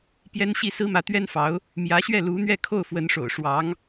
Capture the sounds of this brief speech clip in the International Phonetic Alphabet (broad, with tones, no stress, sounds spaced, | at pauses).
p j ɛ˥ n ɕ i˥˩ s ɹ̩˥ m ä˧˥ t̪ ɥ ɛ˥ n f ɑ˧˥ ʊ̯ | m j ä˧˥ ɕ ɥ ɛ˥˩ l u˧˥ n̪ ɥ ɛ˥˧ kʰ o˥˩ ʊ̯ f w ə˧˥ n ʂ o̰˨˩ ʊ̯ ʂ w ɑ˧˥ ŋ